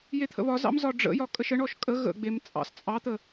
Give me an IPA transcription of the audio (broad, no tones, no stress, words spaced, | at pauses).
jet̪ʰə̰βɒzɑ̰m zɒɖ͡ʐə̰jɒ kʼəʃəɳɔʃ kʼə ɣə̰ɡ͡bem t͡sʼɑ̰st͡sʼɑt̪ə